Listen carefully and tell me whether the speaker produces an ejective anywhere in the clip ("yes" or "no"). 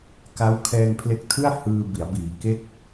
no